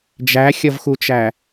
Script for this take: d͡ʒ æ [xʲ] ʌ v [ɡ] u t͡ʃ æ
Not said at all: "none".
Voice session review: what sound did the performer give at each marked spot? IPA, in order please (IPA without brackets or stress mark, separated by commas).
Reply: xʲ, x